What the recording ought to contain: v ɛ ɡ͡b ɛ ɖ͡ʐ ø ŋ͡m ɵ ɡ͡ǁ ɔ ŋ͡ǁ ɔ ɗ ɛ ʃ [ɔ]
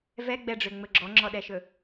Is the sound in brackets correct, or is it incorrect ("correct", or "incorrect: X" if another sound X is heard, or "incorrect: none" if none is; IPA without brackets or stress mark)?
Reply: incorrect: ɵ